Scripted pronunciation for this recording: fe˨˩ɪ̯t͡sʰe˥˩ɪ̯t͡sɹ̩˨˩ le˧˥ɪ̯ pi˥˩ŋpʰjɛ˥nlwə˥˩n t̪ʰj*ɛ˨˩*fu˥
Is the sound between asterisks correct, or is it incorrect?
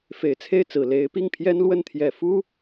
correct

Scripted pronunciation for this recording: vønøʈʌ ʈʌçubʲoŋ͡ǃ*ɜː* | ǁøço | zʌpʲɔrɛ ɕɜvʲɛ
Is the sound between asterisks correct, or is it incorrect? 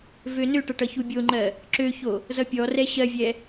incorrect: ɜ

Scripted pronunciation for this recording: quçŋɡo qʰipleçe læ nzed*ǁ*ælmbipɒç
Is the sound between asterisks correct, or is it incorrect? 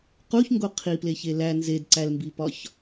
incorrect: ǀ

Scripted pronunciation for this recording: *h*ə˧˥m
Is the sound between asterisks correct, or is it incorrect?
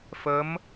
incorrect: f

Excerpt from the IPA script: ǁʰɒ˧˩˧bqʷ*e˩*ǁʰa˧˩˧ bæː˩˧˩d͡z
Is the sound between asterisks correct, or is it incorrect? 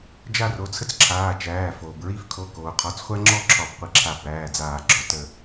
incorrect: i˩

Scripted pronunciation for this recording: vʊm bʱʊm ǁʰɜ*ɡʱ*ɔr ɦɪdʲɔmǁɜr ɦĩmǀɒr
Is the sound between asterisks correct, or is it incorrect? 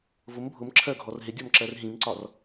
correct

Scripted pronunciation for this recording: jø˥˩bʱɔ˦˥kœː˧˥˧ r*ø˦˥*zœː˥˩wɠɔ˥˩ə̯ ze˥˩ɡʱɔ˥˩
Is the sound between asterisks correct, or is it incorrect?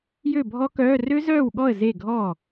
correct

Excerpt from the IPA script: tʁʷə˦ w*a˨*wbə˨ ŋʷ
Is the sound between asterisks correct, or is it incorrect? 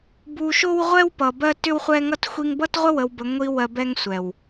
incorrect: ə˨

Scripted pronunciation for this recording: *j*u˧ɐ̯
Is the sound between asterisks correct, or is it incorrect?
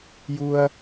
correct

